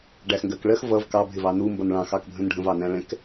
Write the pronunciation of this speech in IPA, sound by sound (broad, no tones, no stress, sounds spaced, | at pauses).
ɖ æ x ŋ ɡ ɜ k ɭ ɜ x v ʌ v k ɑ bʱ ɪ v ɑ n u m b ʌ n ɭ ɑ̃ x ɑ k bʱ ə̃ n ɖʱ ə̃ v ɑ n æ̃ ɭ ɛ̃ k